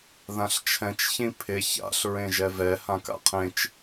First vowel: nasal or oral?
nasal